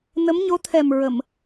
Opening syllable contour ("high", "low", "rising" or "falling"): rising